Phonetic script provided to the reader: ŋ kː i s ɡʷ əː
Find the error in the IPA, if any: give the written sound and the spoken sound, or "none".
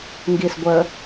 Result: kː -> ɡ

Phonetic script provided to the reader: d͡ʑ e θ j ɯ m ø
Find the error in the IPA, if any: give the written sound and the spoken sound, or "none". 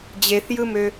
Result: none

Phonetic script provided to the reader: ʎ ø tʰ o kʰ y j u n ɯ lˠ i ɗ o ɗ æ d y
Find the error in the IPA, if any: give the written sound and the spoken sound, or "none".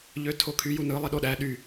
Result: d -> ɗ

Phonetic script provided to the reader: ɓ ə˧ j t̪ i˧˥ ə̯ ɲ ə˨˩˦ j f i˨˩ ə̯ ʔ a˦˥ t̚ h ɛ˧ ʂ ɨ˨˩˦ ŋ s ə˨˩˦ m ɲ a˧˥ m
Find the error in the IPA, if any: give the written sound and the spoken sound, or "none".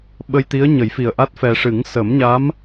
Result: h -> f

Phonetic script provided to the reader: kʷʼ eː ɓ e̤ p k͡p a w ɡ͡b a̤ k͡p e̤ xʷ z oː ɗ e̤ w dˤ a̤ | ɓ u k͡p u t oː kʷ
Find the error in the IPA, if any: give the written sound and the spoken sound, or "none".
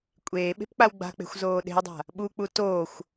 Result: kʷ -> xʷ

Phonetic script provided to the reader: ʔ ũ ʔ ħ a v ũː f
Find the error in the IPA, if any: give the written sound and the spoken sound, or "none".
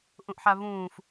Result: none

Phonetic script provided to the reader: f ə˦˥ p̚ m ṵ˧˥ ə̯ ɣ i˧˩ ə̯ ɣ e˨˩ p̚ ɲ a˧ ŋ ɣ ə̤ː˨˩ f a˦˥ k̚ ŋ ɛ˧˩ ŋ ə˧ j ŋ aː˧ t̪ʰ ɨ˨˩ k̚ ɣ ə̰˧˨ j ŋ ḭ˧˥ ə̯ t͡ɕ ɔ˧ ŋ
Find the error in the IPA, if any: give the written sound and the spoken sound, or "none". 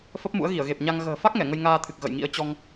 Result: none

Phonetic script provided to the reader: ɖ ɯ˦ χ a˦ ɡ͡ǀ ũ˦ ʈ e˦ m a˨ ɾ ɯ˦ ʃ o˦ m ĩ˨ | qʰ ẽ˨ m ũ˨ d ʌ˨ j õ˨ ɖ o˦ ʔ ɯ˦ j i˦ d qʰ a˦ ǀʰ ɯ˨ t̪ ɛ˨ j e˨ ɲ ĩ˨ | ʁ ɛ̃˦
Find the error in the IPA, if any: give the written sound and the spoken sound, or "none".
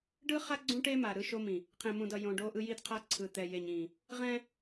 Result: none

